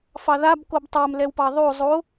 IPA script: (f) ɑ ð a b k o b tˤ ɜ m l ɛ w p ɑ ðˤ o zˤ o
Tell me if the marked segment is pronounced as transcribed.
yes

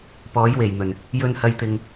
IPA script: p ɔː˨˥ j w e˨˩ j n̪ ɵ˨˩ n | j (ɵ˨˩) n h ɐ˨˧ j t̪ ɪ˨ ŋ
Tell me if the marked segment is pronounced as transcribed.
no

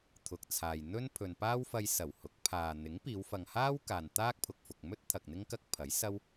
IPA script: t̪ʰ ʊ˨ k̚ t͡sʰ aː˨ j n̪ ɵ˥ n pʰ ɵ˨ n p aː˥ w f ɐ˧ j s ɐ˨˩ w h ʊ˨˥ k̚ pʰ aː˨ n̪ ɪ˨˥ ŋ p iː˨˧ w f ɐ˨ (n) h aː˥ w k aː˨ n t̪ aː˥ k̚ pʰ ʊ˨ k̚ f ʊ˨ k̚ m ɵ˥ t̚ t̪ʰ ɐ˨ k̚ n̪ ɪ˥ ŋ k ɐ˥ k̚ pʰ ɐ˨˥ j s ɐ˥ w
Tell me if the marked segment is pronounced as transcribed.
no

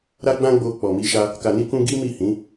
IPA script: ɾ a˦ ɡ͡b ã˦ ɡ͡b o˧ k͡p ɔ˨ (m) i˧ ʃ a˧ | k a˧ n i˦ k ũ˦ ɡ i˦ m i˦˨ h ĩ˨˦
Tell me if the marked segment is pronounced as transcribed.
yes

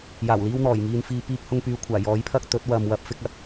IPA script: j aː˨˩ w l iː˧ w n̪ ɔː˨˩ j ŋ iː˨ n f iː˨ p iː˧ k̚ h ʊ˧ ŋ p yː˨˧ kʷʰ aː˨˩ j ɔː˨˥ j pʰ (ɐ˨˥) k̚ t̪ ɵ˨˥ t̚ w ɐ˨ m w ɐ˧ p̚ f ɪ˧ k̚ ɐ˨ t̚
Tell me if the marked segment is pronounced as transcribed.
no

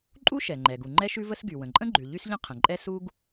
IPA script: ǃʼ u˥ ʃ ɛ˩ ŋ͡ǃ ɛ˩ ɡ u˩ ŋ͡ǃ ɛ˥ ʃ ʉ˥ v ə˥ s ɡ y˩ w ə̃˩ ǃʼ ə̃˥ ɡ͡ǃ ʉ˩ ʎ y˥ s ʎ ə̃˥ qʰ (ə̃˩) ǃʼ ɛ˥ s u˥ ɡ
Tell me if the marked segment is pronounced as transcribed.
yes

